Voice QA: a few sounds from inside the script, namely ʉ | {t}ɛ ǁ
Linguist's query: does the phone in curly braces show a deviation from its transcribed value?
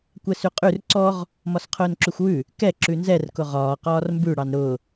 yes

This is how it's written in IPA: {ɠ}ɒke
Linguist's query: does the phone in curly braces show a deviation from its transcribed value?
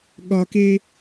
no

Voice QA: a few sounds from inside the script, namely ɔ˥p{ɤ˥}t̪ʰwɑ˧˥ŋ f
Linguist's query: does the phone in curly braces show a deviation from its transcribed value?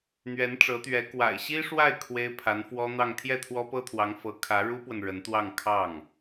no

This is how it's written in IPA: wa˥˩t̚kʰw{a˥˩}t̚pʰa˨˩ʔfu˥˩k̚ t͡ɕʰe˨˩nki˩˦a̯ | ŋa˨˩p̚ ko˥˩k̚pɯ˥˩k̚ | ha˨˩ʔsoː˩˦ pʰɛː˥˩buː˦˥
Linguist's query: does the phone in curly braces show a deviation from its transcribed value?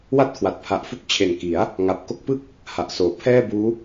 yes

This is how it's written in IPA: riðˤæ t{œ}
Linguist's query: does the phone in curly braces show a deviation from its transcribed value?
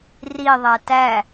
yes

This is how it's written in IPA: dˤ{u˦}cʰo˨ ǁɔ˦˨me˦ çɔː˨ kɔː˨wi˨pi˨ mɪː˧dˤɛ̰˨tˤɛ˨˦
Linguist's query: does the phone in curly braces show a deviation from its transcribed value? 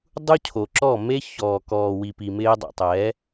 no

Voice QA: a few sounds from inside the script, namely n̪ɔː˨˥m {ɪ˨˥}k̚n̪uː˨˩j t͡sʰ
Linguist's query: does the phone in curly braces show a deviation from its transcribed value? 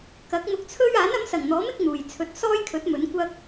no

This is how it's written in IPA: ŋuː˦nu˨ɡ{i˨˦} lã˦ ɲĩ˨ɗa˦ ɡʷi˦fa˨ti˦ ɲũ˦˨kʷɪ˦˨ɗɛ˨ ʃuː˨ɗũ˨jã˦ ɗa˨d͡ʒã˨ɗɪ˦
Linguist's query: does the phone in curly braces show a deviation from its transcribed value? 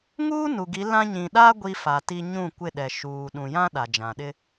no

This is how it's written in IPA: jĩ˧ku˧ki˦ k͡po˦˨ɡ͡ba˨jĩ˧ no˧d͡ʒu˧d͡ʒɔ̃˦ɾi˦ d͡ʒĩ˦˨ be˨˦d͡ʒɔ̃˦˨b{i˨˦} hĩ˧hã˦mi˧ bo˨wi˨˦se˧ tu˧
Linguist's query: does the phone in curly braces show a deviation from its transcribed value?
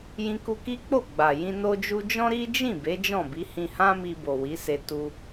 no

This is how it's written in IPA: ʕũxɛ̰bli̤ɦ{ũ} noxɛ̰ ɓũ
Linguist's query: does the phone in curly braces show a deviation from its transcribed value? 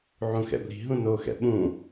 no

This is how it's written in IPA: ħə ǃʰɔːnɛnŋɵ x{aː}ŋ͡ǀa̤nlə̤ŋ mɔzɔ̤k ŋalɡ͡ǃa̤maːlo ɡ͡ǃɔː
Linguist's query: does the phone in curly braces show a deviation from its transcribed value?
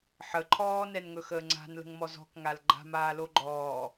yes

